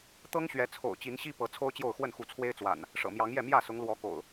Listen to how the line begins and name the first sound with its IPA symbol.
t̪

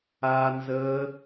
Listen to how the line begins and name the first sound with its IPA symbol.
a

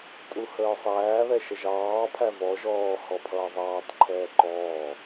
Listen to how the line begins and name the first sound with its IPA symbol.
tʼ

